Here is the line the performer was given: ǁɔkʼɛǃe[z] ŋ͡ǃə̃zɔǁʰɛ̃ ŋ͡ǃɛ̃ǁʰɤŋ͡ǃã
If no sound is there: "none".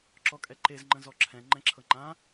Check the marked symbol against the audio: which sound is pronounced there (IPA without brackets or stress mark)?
z